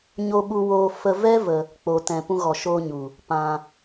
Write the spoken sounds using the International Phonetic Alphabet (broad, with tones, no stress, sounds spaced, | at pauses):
ɲ o˧ ɓ u˧ w oː˧ f ə˧ v ɛ˦ v ə˧ | k͡p o˨ t ɛ̃˨ p ũ˧ ɣ ɔ˨ ʃ oː˧ ɲ u˨ | p ã˧